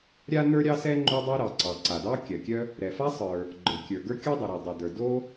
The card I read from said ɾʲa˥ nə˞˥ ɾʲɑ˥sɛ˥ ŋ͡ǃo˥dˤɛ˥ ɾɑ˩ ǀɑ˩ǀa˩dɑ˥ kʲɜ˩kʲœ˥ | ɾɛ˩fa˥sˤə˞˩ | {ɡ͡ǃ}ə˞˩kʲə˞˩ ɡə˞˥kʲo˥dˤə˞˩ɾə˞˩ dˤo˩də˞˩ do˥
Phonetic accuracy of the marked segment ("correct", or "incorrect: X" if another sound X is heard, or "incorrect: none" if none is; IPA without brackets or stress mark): correct